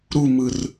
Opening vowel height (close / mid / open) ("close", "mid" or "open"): close